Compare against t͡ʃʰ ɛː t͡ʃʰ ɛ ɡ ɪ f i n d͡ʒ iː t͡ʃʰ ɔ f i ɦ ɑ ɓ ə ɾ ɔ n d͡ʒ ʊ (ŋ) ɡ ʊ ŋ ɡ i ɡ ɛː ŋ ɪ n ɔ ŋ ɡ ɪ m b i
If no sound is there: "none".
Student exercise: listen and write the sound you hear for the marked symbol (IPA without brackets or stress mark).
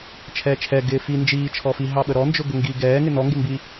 none